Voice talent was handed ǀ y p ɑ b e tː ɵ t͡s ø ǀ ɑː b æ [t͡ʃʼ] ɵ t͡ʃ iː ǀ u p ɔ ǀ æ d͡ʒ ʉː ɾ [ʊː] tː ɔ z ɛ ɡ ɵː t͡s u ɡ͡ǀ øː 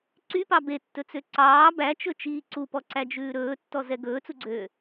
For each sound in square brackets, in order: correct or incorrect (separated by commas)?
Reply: incorrect, incorrect